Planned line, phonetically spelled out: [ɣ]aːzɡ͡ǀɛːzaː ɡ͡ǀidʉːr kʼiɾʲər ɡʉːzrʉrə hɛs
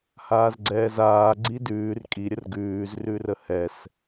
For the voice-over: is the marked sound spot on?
no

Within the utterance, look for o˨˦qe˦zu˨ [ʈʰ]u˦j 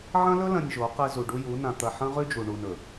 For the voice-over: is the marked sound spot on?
no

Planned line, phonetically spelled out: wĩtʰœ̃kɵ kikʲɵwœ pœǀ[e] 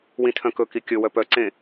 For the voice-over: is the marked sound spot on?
no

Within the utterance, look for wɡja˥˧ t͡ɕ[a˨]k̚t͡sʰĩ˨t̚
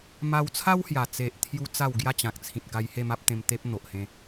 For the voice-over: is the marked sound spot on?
no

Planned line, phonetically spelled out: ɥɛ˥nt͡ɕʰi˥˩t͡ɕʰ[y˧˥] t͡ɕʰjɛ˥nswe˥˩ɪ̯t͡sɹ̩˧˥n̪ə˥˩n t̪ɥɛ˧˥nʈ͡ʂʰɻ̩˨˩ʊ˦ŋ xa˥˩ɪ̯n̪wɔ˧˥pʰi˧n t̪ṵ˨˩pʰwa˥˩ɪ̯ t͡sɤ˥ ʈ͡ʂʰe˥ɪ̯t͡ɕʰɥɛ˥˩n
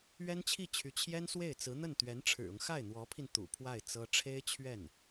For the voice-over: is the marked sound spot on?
yes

